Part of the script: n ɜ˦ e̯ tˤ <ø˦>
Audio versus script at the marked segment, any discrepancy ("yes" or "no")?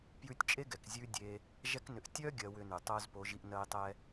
yes